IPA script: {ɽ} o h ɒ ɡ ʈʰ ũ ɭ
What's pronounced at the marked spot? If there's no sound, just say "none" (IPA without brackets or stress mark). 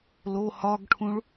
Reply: l